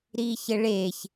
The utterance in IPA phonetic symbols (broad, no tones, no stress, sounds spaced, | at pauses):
ɾ iː ç ɘ ɭ eː ç